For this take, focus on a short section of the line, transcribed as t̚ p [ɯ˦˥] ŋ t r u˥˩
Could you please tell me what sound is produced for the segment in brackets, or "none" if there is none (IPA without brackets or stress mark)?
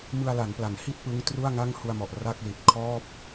ɯ˦˥